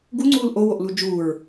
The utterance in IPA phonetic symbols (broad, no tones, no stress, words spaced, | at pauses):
ɡuŋ͡ǀuːl ʔowoʔlu d͡ʒuːɹ